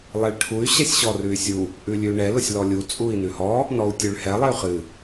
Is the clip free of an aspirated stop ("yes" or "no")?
no